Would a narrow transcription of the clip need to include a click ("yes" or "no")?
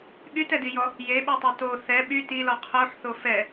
no